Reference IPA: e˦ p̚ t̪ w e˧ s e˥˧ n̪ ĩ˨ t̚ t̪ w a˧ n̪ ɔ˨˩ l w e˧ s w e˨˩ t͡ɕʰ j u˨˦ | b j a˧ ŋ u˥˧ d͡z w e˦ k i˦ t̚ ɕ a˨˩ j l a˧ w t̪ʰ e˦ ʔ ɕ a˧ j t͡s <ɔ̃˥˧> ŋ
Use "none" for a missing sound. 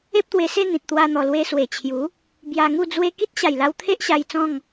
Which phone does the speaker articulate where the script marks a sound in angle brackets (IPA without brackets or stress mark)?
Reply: ɔ̃˥˧